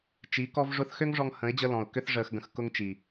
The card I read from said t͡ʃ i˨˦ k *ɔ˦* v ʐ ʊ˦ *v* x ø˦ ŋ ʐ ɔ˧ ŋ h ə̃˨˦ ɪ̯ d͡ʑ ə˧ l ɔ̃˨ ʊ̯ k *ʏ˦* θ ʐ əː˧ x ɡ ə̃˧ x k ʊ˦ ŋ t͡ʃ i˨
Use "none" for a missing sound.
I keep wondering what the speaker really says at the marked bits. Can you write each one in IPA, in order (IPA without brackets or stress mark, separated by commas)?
ɔ˦, θ, ʏ˦